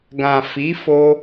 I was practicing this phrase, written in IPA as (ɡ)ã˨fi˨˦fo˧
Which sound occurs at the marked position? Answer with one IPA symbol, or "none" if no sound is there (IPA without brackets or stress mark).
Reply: ɡ